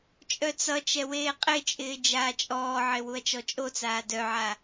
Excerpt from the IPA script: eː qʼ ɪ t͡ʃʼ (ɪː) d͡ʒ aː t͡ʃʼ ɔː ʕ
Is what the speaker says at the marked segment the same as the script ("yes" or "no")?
yes